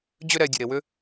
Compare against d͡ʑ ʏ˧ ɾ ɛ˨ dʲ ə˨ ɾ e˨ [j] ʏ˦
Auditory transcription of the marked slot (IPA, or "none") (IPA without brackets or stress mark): w